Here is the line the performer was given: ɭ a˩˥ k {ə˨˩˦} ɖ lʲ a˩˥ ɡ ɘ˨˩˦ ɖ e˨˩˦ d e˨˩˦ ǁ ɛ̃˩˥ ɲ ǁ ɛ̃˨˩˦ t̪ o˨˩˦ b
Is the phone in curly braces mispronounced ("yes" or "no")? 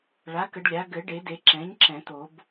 no